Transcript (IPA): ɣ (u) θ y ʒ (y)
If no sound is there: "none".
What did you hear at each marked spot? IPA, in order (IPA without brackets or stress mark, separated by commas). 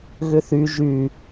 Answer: ʏ, y